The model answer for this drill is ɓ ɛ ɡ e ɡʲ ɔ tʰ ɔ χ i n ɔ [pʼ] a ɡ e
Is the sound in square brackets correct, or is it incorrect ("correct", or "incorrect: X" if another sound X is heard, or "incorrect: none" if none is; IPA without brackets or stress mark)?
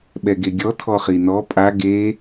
correct